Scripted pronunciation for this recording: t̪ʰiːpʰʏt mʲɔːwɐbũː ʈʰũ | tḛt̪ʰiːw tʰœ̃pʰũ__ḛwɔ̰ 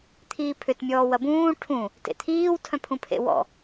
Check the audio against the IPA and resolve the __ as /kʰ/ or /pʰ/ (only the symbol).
pʰ